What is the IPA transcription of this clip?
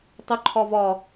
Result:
tˤʏǃʰɒ vɒ

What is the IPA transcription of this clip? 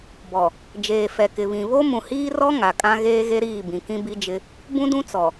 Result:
bɔ˨ | d͡ʒeː˨ fɛ˨kɪ˨βĩ˨ βo˦ mũ˨hiː˦rɔ˦ ŋa˨kʼã˦ ɣeː˦ɣe˦ɾiː˦˨bĩ˨ kĩ˦bi˦d͡ʒɪ˦ | bũ˦dũ˦t͡sɔ˨

